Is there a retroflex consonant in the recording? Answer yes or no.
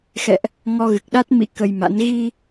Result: no